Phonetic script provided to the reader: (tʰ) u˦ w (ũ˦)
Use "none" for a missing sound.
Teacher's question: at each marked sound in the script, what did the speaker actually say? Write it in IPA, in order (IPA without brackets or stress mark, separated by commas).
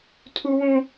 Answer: tʰ, ũ˦